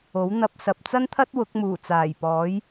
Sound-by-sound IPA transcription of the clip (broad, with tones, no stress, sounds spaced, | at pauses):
o˨˥ w n̪ ɐ˨ p̚ s ɐ˨ p̚ t͡s ɐ˥ n t̪ʰ ɐ˥ t̚ w ʊ˨˥ k̚ m uː˨˩ t͡s aː˨˩ j p ɔː˨˥ j